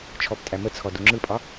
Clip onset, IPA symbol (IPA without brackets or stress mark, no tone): t͡ʃʰ